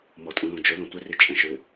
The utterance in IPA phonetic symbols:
mɔtʼũlõd͡ʒʊ lõtʷɪri t͡ʃʼɛ̃ʃɹɪ

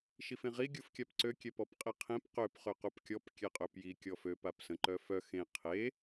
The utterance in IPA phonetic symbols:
ʃifẽʁi ɡʲufkʲapǀø kʲɛpɔpqʼiqʰẽp qøp χøqupkʲɔp kʲɛqʼøpji kʲɔføp apsə̃ ǃœfœ xẽ qʰe

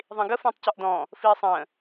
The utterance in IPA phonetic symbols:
ðˤĩɡə fə̃ːtˤcɔʔdɔ̃ | fiːsˤə̃ː

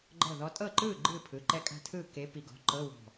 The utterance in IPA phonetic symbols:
ɡ͡ǃɤ˧˩ðɔ˨˦tʼɤ˥˩ǃɯː˥˩ ɡ͡ǃɯː˥˩pʰɯ˩˧˩ǃɛ˦˥ kʼa̤˦˥tʰɯː˥˩ ke˨˦ pi˨˦ ɡɔ̤˩˧˩ǃɤ˧˥˧ wɔ̤˧˩

